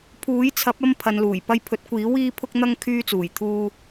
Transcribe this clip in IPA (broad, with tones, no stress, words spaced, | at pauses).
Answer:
pʰuː˨˥jt͡sʰɐ˨˥p̚ɐ˧m pʰɐ˨˧nluː˨˩j pɐ˧jpʰɵ˨˥t̚kʷiː˨˥ wiː˥pʰʊ˥k̚n̪ɐ˥ŋ kʰyː˧t͡suː˨˩jt̪ʰuː˧